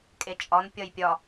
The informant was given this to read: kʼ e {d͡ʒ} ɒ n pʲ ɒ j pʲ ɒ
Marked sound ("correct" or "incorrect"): incorrect